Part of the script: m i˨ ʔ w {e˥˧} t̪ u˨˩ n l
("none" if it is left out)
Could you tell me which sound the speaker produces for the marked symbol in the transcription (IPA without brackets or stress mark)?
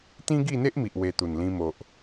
e˧